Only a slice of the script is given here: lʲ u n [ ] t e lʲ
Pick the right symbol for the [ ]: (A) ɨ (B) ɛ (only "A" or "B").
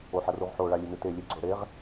A